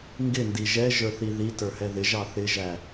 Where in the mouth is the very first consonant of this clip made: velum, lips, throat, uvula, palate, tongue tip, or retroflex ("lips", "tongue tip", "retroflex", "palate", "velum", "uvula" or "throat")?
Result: velum